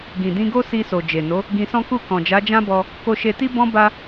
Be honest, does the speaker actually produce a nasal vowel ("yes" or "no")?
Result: yes